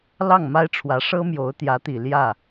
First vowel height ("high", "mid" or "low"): low